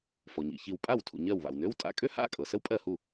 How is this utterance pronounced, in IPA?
fɔ˩ɲḭ˩çi˧˩w pʼa˥˩wtʰṵ˩ɲɜ˧˩w βa̰˩wnø˧˥˧wtʼa̰˧˥˧ kʼø˥ha̰˧˥˧kʼɤ˩ sə˥wpʼɜ˥˩hu˥˩

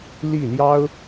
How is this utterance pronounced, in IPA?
li˥˩ ljɑ˥ʊ̯

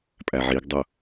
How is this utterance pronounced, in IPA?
pʼæʕiɡdˤʊ

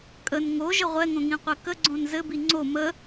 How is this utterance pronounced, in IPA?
kʼən ŋoʒə ʁʷɛŋõŋĩqʷɛ kəɡ͡ǀõn zɘbi ŋ͡ǀo mə

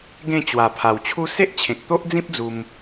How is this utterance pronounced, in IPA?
ɡẽ˥˧ t͡ɕwa˨˩pʰa˨˩wt͡ɕʰu˦ se˦ʔt͡ɕʰẽ˨k̚t̪o˦ʔd͡zĩ˦p̚ d͡zu˧m

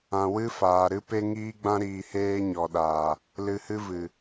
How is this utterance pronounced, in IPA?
ã˨ wɨ˦ faː˨ɾɨ˦pe˦ ŋiː˦ɡ͡bã˦ ɾiː˧heː˦ ɲɔ˨ɗaː˨ | lɨ˧hɨ˦vɨ˨

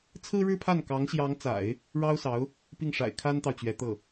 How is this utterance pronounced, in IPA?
t͡sʰɹ̩˥ɻɻ̩˥pʰa˥˩n kɑ˧˥ŋɕjɑ˧˥ŋt͡sa̰˨˩˦ɪ̯ | ɻɑ˥ʊ̯sɑ˧˥ʊ̯ | pi˥˩ŋʂa̰˨˩ɪ̯ kʰa˥nt̪ɑ˨ʊ̯t͡ɕɥɛ˧˥ t̪ɤ˥˩

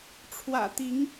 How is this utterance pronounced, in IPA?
ʈ͡ʂʰwä̰˨˩ t̪i˧˥ŋ

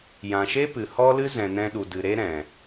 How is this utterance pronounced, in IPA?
jã˨ʃe˦pɨ˨ hɔ˦lɨ˦zɛ̃˨ nɛ̃˧ɗu˨dɨ˨ɾe˦ ɾɛ̃˨

